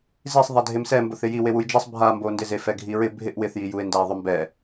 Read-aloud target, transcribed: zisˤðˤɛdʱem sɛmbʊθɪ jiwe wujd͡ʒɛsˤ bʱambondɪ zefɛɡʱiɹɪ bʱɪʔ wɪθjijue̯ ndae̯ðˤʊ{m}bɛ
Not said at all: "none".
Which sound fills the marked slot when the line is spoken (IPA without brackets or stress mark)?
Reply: m